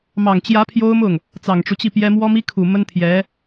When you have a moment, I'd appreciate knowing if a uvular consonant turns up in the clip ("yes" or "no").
no